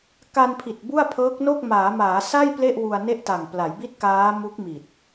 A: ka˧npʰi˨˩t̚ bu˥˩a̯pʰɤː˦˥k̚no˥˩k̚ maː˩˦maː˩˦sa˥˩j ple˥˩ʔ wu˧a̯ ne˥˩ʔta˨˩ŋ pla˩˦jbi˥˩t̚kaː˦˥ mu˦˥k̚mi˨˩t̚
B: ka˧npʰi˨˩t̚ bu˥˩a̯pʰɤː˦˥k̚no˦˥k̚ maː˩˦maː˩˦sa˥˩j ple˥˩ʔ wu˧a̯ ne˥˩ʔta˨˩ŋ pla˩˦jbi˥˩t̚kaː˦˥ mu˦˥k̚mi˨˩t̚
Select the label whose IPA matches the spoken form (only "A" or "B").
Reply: A